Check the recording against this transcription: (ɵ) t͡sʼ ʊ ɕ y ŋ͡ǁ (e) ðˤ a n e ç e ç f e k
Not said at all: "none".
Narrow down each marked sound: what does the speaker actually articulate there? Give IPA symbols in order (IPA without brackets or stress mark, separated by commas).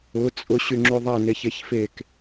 ʊ, y